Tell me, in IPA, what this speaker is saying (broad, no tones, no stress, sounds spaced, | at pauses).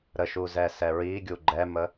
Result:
ɾ ə ʃ u z ɛ s ɛ ɹ i ɡʲ u ɡ͡ǃ ɛ m ə